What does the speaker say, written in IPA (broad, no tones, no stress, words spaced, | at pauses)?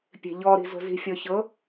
pʲe̤ʎɔ ɾi̤zo̤zi̤ fʲɔçɤ